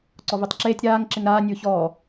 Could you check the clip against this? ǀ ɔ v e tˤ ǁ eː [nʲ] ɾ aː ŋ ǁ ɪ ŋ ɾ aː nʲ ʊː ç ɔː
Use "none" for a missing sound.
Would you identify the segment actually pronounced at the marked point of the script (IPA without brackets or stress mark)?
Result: tʲ